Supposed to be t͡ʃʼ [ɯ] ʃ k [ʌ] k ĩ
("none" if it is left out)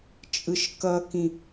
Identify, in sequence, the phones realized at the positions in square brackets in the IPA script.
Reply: ɯ, ʌ

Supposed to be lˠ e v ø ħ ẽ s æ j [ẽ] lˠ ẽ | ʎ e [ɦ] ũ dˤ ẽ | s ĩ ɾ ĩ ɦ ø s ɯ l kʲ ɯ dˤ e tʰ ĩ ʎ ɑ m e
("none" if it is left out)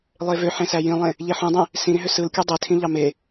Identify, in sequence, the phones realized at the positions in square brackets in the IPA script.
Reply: ĩ, ħ

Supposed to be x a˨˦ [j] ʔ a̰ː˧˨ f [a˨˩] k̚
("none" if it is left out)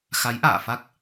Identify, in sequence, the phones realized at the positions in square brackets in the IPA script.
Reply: j, a˦˥

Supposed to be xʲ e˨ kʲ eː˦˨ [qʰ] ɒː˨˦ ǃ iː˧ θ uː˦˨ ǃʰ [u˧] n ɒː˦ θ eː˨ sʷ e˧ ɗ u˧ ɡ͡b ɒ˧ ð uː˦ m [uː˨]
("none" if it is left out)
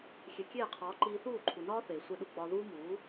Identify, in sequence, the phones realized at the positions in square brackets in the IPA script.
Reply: qʰ, u˨, uː˨˦

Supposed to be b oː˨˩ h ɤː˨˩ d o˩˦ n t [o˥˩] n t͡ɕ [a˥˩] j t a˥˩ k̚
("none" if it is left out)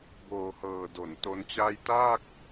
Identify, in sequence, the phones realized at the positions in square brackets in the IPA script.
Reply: o˦˥, a˥˩

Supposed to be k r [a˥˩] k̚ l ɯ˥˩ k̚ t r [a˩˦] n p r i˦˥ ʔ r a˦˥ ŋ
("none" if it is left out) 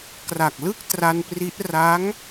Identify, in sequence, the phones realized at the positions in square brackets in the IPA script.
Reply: a˨˩, a˧

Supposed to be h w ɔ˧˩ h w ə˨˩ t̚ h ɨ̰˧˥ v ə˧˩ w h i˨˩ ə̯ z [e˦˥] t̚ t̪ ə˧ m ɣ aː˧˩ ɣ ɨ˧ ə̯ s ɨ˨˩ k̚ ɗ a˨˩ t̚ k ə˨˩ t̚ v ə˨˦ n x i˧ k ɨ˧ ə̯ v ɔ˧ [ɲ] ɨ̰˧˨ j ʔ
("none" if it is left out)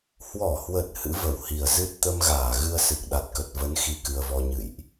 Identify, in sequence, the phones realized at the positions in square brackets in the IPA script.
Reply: ɨ˦˥, ɲ

